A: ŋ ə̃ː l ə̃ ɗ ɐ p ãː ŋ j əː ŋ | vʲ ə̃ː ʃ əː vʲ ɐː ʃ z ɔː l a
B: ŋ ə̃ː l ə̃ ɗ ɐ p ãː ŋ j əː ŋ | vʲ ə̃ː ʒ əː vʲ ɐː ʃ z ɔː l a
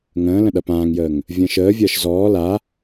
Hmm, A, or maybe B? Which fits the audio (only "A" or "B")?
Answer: A